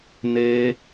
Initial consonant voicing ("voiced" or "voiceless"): voiced